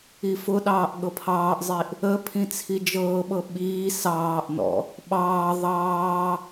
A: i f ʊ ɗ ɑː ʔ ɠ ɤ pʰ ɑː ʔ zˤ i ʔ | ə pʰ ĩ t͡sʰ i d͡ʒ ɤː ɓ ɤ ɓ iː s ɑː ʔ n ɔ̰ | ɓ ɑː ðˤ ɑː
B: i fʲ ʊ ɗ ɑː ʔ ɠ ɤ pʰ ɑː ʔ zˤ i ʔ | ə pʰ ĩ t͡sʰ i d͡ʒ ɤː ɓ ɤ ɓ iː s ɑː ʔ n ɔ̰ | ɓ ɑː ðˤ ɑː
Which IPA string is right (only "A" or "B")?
A